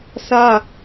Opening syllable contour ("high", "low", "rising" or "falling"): high